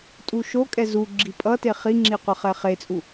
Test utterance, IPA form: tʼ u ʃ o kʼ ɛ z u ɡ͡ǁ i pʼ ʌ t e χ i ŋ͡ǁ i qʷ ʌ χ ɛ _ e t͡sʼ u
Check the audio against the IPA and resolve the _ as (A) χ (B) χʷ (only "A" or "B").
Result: A